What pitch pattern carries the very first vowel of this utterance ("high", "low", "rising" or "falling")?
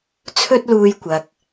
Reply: high